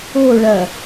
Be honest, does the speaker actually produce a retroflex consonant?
yes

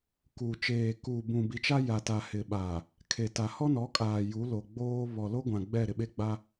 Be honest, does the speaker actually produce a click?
no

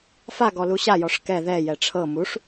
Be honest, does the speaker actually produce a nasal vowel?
no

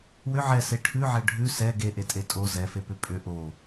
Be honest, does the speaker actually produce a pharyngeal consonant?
yes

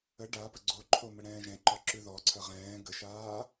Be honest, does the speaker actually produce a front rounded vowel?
no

